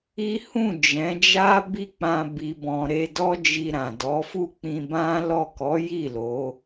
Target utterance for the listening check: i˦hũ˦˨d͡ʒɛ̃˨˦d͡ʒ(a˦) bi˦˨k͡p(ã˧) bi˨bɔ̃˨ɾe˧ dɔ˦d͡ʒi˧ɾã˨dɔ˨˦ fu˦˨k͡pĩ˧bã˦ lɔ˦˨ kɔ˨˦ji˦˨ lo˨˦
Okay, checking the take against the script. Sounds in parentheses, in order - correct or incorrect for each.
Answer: correct, correct

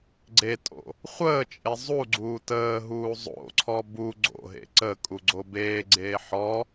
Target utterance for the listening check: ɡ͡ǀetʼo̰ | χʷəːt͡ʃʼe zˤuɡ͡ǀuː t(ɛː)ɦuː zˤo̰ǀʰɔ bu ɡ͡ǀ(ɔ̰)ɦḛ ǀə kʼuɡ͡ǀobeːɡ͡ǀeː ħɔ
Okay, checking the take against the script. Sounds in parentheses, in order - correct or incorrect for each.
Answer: incorrect, incorrect

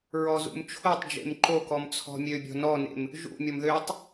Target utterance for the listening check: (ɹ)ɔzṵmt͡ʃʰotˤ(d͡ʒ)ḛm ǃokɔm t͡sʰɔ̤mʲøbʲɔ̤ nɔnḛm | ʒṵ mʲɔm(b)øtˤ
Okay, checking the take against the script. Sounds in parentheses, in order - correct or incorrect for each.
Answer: correct, correct, incorrect

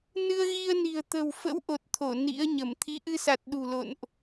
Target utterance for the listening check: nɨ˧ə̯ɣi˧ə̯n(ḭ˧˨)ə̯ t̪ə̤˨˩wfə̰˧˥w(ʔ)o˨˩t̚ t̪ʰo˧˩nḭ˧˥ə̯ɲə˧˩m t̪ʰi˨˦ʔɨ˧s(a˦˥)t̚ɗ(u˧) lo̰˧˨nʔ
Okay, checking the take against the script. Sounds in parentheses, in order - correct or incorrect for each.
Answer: incorrect, correct, incorrect, incorrect

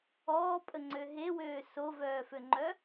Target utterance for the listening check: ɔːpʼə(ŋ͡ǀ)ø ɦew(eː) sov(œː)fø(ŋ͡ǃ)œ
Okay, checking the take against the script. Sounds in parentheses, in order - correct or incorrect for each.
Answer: correct, incorrect, correct, correct

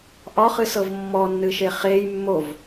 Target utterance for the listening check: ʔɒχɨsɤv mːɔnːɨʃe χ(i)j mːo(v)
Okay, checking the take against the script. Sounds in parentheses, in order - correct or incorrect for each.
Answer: incorrect, correct

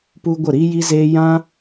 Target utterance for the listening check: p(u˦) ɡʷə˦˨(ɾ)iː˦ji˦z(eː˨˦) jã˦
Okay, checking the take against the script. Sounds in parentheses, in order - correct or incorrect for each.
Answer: correct, correct, incorrect

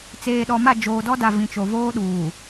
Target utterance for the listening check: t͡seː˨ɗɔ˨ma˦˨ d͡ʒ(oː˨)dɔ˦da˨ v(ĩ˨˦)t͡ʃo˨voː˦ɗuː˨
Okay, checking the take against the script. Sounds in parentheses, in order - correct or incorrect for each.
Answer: correct, incorrect

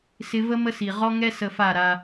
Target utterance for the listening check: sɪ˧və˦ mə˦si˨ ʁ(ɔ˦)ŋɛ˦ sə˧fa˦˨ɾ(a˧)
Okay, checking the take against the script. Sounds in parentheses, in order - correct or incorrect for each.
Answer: correct, correct

